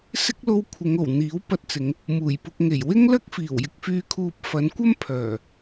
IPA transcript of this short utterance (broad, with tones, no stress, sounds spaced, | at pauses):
s ɪ˥ k̚ l o˥ w kʷʰ ɪ˨˧ ŋ o˨˩ w n̪ iː˨˥ w p ɐ˧ t̚ t͡s ɪ˨˧ ŋ | m uː˨˩ j p ʊ˧ k̚ ŋ e˨˩ j w ɪ˥ ŋ l ɐ˥ k̚ f iː˨˩ w j ɪ˧ k̚ f yː˧ kʰ uː˧ p̚ f ɐ˨˥ n kʷ ɐ˥ m pʰ œː˨˩